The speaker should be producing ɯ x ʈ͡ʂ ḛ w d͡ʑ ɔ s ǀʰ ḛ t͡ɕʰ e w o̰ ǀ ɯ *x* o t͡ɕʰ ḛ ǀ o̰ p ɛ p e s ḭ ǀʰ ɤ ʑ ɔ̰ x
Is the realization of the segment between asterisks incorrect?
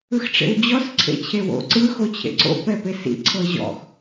no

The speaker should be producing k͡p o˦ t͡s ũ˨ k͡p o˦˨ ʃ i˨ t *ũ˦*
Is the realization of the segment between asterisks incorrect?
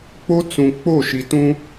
no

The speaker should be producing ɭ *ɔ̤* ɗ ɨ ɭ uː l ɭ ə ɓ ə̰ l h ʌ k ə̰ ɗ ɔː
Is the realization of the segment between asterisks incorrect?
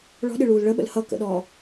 no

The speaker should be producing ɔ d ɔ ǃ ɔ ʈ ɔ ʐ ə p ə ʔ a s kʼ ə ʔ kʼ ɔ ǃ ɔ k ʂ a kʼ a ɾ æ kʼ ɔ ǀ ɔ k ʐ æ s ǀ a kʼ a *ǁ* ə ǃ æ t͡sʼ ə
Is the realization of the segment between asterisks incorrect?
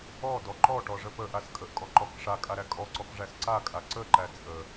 yes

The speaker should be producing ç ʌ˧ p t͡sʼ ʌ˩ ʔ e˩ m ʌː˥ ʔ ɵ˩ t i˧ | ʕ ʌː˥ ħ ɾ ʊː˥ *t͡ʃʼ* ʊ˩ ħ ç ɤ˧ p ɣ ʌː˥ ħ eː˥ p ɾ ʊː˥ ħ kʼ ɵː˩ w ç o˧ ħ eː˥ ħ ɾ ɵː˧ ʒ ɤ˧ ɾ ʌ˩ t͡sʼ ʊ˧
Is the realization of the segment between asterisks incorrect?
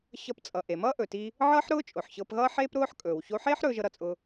no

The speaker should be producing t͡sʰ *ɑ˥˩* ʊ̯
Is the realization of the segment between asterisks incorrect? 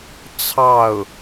no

